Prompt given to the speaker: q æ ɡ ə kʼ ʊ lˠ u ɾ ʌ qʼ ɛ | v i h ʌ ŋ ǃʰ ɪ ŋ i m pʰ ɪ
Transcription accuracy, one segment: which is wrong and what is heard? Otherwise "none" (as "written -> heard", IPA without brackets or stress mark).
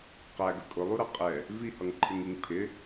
m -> ŋ